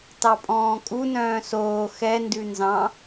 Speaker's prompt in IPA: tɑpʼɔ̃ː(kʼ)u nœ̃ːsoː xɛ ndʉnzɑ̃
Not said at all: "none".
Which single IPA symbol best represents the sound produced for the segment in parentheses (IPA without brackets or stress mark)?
kʼ